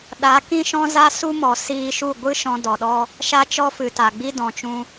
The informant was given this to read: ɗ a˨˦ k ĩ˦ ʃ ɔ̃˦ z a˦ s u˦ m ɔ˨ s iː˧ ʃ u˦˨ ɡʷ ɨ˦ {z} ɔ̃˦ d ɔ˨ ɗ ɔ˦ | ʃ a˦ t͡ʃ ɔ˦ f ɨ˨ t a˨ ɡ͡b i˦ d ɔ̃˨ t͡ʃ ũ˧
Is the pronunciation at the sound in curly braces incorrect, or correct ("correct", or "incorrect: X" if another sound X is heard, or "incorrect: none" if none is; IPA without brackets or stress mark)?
incorrect: ʃ